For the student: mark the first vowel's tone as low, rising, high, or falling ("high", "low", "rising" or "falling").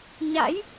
rising